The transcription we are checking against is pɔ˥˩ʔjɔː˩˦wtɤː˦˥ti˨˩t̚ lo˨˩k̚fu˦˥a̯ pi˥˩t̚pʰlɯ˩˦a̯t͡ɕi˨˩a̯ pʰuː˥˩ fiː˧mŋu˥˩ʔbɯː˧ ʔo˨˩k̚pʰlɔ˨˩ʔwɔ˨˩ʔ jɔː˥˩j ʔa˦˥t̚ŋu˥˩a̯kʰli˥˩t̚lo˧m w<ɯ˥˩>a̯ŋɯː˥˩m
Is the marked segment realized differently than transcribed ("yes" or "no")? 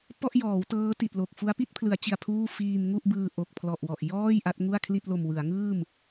yes